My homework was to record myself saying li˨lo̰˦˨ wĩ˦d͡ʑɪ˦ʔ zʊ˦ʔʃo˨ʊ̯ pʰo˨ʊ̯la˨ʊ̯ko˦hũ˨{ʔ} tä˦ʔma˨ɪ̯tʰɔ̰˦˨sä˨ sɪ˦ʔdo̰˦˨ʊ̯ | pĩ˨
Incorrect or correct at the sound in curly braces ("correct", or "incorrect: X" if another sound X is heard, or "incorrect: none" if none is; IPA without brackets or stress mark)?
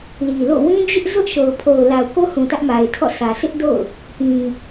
incorrect: none